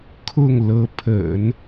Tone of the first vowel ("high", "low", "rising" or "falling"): falling